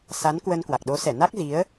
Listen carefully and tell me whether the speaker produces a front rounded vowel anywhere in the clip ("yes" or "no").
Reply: no